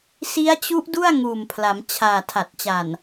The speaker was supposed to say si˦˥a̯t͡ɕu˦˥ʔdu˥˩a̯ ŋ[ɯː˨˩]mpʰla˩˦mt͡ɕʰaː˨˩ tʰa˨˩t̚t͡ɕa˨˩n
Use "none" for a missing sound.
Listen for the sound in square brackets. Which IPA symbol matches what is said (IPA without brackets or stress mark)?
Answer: uː˨˩